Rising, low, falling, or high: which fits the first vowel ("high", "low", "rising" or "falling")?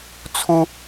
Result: high